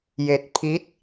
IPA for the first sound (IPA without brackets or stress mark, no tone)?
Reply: j